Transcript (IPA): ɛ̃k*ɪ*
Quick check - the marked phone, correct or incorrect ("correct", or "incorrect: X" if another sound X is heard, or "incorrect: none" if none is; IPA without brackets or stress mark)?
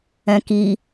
incorrect: i